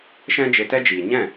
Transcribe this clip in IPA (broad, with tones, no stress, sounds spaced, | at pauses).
ʃ ɛ̃˦ d͡ʒ e˧ t ɛ˦ d͡ʒ iː˨ ɲ ɛ̃˦˨